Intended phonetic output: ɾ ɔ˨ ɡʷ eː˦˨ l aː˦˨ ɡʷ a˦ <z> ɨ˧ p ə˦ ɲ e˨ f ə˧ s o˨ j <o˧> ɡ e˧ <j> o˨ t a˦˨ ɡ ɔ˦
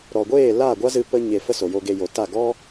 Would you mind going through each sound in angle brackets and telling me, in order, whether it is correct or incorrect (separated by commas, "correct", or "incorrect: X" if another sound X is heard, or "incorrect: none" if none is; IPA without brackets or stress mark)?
correct, correct, correct